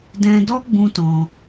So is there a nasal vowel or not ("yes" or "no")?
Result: yes